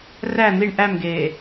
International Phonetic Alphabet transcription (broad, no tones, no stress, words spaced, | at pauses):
ræ n̪iɳ ʔæmɡeː